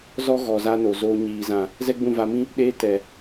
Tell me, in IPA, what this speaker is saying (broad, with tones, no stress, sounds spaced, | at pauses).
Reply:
z ɔ˦ ɣ ɔ˨ z a˧ n o˨ z oː˧ ɲ iː˨ z ã˨ | z ɛ˦ ɡ͡b ũ˦˨ v a˧ m ĩ˦ | ɗ eː˦ t ɛ˨